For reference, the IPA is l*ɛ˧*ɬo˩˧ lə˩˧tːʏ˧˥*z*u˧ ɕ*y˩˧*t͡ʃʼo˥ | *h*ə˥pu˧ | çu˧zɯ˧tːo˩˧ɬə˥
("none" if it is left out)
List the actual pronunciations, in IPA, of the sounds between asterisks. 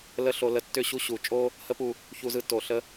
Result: ə˧, ɕ, u˩˧, h

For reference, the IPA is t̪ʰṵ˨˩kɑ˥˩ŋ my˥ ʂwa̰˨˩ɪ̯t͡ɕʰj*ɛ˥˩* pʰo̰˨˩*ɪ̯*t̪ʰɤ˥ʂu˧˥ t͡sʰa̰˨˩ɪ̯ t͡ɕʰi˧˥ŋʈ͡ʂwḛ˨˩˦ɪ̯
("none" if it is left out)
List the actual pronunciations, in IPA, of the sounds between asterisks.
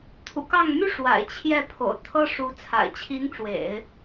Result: ɛ˥˩, ʊ̯

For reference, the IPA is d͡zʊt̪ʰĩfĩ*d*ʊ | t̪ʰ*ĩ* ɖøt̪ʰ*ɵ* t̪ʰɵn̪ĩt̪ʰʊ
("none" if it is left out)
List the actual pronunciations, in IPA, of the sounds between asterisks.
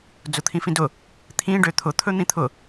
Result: d, ĩ, ʊ

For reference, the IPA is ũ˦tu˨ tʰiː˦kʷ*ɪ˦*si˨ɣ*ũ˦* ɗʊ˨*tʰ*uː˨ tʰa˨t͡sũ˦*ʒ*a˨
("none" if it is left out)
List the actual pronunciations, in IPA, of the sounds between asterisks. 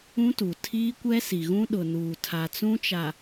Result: ɛ˦, ũ˦, n, t͡ʃ

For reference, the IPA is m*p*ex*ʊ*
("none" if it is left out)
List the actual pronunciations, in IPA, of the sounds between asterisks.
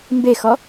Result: b, ɔ

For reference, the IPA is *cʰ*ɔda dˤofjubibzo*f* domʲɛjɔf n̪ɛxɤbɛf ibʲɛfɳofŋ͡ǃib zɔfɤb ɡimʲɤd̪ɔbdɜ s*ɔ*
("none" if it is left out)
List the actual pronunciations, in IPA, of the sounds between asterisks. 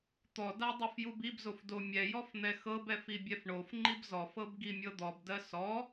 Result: t̪, f, ɔ

